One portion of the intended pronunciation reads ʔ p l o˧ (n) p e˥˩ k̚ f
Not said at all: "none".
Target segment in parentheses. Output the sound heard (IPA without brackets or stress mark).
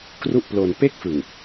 n